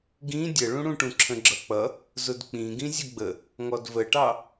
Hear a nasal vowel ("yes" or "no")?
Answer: yes